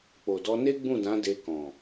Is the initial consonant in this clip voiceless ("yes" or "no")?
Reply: yes